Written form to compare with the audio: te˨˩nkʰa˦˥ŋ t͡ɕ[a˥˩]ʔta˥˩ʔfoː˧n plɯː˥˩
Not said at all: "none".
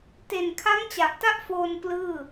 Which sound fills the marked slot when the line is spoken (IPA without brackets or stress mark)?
a˨˩